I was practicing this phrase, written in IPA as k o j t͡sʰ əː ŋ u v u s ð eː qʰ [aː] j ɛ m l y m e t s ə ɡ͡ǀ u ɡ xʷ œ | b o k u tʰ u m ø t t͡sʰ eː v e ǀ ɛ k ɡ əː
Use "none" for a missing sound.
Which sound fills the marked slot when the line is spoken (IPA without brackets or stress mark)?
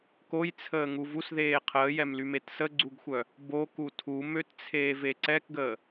əː